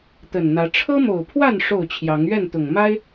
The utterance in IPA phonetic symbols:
t̪ ə˨˩ n n̪ ä˨˦ ʈ͡ʂʰ ɤ˦ m o˨˩ ʊ̯ pʰ w a˥˨ n ʂ o˥˨ ʊ̯ t͡ɕʰ j ɑ˨˦ ŋ ɥ ɛ˥˨ n t̪ ʊ˨˩ ŋ m a˦ ɪ̯

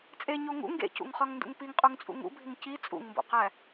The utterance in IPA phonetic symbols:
t͡sʼ e ɲ o ŋ ṵ ŋ ɡ ḛ c ṵ ŋ χ ɒ ŋ n d ṵ ŋ p i ŋ qʼ u ŋ t͡sʼ ṵ ŋ ṵ bʱ i ŋ c i t͡sʼ ṵ ŋ m b o̰ q æ

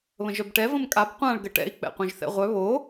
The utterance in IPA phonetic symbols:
β ə̃ ʒ œ b ʈ ɛ v ə̃ m kʼ a b qʷ ã ɭ ɡ ə ʈ ɛ̰ i̯ k͡p ɛ̰ qʷ œ̃ ʒ θ ɛ̰ ʁʷ œ β o

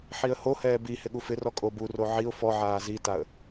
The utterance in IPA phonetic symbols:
ħ i ə̯ h o h ɛː b i h ɪ ɠ u f ɪ r ɔ kʼ o b u r o ʕ i ʊ̯ f ɔ ʕ aː z i t a ə̯

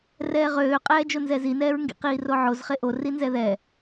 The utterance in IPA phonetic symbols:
r ɛː ʁ øː qʼ ɛː d͡ʒ o n z ɛ z i n ɛː ɹ ŋ ɡ ḭ q iː r o ʕ o z χ e ʔ o r i n z ɛ ð ɛ

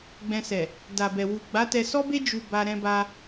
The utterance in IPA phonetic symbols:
ɡ͡b ɛ̃˧ s ɛ˨ | d a˨ b ɛ˨ w u˨ ɡ͡b a˨˦ t ɛ˧ s ɔ˦ b e˦ d͡ʒ u˧ b a˧ ɾ ɛ̃˧ b a˧

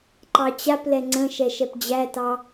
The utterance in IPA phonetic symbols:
ǃ ɑ t͡ɕ a p l ɛ ŋ͡ǀ ə̃ ʃ ɛ ʃ ɛ p d͡ʑ æ t ɑ

